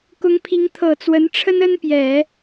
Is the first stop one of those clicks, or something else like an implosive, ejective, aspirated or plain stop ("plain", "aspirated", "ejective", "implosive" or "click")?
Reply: plain